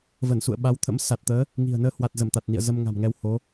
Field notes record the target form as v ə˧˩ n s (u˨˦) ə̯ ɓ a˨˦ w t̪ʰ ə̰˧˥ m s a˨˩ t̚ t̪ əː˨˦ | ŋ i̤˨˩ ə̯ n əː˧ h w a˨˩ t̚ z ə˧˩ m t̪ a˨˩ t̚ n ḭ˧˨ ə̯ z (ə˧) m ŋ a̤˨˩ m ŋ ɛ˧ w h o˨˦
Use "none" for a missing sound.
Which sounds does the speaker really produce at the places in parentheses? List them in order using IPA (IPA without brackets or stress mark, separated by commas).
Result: ṵ˧˨, ə˧